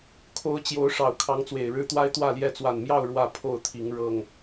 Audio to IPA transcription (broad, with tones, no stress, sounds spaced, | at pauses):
kʰ o˨˦ ʊ̯ t͡ɕ j o˨˦ ʊ̯ ʂ ɑ˨˩ ʊ̯ kʰ ɑ˨˦ ŋ t͡s w e˨˩ ɪ̯ ɻ ɻ̩˦ t̪ w a˦ ɪ̯ t̪ w ä˥˨ l j ɛ˥˨ t͡s w a˨˩ n m j ɑ˥˨ ʊ̯ ɻ w ä˥˨ pʰ o˥˨ ʊ̯ t̪ʰ i˨˦ ŋ ɻ ɤ˨˩ ŋ